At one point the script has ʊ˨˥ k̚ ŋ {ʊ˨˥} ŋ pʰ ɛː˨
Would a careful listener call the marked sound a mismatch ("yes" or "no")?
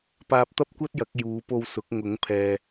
no